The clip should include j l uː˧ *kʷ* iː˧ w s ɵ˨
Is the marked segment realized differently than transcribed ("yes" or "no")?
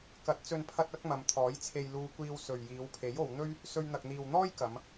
no